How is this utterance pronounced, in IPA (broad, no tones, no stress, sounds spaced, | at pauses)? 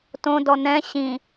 t õ d ɔ n ɛ̃ ɕ ĩ